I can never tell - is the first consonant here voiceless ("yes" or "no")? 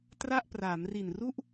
yes